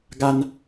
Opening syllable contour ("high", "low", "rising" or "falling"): high